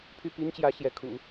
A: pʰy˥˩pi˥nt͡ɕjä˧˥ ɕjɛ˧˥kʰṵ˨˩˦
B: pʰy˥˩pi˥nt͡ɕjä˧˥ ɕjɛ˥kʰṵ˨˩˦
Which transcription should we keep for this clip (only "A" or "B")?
A